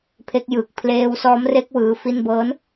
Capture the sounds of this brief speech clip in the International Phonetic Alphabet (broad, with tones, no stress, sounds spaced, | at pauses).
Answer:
pʰ e˦˥ k̚ j ɯː˨˩ k̚ pʰ l eː˧ w s ɔː˦˥ m r e˦˥ k̚ w ɯː˦˥ f i˥˩ n b ɤː˦˥ n